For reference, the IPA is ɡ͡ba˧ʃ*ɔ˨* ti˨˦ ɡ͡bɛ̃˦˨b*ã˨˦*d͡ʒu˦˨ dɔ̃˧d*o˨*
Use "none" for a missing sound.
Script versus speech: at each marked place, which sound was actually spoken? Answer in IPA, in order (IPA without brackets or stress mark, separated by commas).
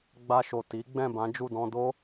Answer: o˨, ã˨˦, o˦